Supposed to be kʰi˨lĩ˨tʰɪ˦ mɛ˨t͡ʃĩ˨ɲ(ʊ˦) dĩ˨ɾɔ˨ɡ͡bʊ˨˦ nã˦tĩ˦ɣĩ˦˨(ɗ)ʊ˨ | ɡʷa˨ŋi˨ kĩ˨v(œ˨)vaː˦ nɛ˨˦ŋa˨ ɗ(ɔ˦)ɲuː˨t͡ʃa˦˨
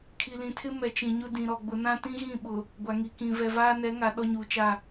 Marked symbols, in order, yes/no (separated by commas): yes, no, no, yes